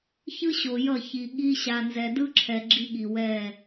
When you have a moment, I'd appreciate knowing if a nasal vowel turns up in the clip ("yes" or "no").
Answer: no